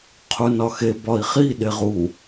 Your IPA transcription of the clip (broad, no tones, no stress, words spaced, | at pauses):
qʰunɒxe bɒi̯χi ɗeʁu